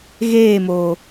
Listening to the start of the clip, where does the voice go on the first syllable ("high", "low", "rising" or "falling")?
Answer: falling